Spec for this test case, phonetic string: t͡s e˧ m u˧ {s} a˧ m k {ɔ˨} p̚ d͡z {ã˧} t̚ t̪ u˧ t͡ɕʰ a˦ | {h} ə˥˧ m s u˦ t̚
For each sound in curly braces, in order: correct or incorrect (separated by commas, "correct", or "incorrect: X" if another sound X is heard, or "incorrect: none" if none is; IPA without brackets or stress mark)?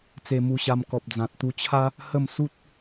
incorrect: ɕ, correct, incorrect: ã˨, correct